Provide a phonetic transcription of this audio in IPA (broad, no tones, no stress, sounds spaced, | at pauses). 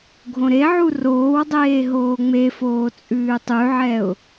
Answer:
ɡʱ õ ɾ e ʕ u r oː w dˤ eː ɦ oː ŋ͡m e f oː t͡sʼ ʉː tˤ ʉ ʕ ɛ ʊ̯